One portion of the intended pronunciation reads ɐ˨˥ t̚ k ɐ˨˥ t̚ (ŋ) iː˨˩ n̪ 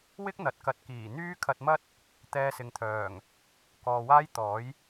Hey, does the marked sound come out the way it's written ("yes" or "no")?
no